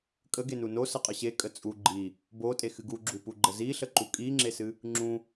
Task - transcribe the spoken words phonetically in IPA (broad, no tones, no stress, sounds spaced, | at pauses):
kʼ ə ɡ e n u n o s ə qʼ ə ɕ e kʼ ə t͡sʼ u ɡ͡ǃ i | b o tʼ e x ɨ ɡ u ɡ͡ǁ u p u ɡ͡ǃ ə z i ɬ ə ǃ u kʼ i ŋ͡ǁ e s ɨ | ŋ͡ǁ ũ